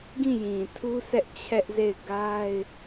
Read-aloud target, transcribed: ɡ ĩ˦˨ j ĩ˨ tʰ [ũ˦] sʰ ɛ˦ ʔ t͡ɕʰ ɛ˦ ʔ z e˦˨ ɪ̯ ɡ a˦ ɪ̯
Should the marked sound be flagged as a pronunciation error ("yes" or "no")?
yes